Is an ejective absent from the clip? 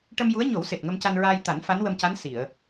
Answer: yes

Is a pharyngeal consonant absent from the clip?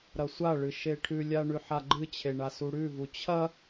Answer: no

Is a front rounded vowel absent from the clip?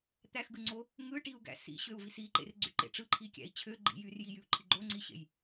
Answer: no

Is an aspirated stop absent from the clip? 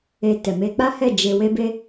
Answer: yes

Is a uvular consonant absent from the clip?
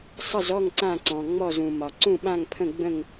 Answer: yes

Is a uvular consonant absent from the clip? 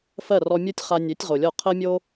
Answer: no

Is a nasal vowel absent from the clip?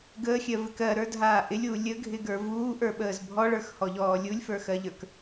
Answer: yes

